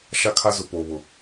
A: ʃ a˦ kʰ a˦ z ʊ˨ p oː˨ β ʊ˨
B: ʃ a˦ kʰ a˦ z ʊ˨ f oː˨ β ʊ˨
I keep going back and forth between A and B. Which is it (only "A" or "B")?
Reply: A